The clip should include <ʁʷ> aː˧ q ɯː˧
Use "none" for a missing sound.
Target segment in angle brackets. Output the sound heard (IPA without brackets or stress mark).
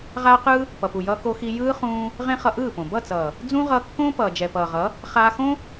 ʁ